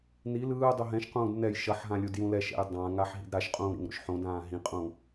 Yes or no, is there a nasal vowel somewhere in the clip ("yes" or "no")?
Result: yes